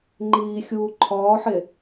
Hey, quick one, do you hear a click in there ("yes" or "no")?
yes